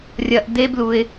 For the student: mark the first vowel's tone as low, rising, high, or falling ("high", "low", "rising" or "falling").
low